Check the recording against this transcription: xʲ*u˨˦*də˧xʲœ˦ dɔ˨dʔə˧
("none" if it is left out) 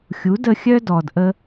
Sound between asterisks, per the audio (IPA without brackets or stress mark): u˨˦